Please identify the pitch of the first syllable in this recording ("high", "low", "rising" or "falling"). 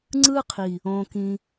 high